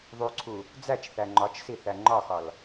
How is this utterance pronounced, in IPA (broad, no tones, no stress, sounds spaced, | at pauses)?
ðˤ u ǀʰ u | d͡z æ t͡ʃ θ æ ŋ͡ǃ ɒ t͡ʃ s i θ æ ŋ͡ǃ ɒ x ɒ l